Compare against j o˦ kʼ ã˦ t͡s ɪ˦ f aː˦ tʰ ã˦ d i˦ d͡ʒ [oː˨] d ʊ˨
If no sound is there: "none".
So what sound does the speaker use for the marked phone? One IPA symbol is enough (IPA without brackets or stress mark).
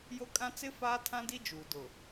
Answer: uː˨